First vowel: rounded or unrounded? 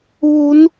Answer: rounded